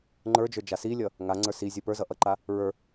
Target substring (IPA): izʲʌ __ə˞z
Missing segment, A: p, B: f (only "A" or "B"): A